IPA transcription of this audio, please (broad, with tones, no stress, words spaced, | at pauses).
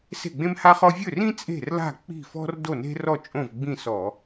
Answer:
se̤˥˨ɡ͡bẽ˥mha˥χɔ˥ vʲɵ˥˨rĩ˥ t͡sʼe̤˥˨rla̤˥˨k͡pi̤˥˨fɔ̤˥r do˥˨ne̤˥rɔ˥˨ t͡ʃʼõ˥˨vɡ͡bĩ˥˨sɔ˧˩˧